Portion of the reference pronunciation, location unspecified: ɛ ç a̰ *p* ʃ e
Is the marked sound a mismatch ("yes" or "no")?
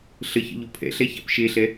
no